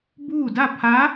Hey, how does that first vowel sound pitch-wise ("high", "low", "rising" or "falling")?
falling